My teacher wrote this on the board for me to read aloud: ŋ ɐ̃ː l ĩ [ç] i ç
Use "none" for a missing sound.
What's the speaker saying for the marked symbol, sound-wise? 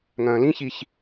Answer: ç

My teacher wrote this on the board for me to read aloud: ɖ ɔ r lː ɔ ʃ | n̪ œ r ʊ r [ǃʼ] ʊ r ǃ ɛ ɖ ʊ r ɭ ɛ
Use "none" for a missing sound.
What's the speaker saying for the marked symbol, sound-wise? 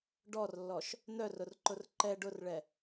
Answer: ǃ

